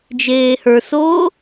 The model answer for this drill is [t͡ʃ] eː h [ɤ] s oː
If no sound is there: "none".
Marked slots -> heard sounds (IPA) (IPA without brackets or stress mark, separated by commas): d͡ʒ, ə˞